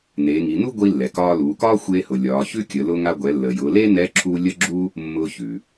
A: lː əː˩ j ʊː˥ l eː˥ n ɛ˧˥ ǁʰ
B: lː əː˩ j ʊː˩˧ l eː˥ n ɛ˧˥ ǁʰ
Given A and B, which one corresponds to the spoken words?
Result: B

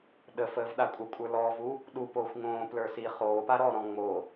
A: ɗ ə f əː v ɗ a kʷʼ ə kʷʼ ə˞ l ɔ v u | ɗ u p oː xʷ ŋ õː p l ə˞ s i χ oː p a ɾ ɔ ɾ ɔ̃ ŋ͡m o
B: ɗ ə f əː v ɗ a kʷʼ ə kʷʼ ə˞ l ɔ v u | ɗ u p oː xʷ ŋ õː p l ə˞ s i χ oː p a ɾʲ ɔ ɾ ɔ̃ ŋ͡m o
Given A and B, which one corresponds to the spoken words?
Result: A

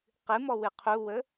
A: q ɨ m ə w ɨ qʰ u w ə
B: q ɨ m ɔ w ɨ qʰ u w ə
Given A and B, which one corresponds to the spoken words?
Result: B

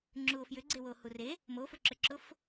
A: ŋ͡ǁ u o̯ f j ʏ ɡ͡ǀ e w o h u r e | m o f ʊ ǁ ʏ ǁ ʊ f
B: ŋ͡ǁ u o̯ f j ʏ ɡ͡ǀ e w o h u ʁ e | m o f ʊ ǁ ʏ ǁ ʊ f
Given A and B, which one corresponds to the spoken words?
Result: A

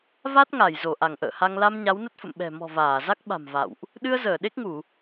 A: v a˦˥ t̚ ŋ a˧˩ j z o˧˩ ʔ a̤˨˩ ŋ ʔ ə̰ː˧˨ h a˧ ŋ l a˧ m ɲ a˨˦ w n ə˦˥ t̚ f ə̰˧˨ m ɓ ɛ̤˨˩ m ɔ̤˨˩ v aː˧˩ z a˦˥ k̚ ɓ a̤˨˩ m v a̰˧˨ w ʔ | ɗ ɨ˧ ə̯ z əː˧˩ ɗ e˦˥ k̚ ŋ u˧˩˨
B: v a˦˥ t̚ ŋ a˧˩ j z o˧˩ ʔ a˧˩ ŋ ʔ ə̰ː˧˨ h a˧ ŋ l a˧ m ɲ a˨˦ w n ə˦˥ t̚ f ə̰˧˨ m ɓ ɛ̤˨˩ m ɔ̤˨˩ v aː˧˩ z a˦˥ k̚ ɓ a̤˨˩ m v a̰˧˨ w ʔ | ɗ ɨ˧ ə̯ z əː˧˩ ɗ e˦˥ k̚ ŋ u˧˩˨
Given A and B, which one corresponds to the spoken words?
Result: B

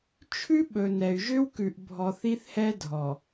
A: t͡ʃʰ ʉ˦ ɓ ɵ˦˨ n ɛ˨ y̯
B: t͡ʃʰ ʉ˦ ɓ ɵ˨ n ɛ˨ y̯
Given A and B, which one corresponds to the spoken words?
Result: B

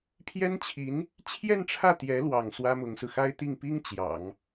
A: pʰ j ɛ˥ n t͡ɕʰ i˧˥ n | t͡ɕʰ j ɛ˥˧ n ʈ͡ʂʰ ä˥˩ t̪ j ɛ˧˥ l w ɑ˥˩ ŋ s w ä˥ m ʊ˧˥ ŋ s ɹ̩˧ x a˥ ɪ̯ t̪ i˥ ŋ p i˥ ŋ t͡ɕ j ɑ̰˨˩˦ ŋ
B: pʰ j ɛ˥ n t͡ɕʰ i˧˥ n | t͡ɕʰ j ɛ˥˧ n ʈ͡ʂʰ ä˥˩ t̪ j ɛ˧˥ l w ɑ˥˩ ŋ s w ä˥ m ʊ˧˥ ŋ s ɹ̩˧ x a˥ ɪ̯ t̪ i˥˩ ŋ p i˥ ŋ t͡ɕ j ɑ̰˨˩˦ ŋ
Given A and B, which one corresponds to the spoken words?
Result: B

